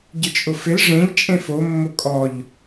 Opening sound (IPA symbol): ɟ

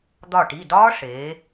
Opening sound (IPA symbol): d̪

